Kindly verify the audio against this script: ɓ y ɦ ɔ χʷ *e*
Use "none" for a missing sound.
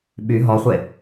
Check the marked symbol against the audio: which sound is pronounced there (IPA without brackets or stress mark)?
e